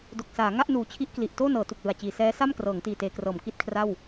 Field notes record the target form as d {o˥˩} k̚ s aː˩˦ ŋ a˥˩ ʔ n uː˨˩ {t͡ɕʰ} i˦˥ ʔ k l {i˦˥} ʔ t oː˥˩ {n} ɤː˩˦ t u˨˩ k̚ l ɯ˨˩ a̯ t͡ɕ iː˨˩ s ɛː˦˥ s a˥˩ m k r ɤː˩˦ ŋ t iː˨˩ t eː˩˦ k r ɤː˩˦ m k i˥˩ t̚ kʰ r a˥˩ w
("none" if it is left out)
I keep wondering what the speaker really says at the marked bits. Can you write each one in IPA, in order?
o˨˩, t͡ɕʰ, i˨˩, n

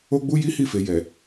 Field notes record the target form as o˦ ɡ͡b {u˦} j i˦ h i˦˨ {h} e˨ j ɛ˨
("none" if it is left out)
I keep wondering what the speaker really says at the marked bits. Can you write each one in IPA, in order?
u˦, f

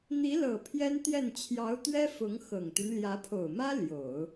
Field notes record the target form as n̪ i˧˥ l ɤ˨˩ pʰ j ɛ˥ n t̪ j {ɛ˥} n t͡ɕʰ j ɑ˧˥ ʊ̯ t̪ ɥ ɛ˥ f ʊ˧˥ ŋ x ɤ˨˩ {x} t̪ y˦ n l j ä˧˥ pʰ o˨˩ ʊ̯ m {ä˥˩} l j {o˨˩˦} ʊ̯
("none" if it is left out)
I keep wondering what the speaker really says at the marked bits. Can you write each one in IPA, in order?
ɛ˥˩, ŋ, ä˥, o˨˩˦

